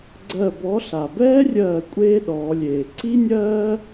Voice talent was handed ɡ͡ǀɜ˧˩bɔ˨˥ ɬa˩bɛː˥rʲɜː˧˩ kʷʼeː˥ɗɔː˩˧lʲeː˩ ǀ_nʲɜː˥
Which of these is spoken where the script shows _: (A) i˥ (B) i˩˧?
A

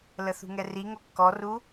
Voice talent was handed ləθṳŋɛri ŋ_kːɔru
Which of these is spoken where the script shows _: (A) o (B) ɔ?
A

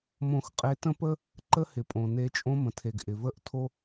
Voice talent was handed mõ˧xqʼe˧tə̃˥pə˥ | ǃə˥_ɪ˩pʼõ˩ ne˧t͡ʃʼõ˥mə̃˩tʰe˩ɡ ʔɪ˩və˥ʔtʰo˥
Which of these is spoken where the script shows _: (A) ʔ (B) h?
B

